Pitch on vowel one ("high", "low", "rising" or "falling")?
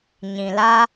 low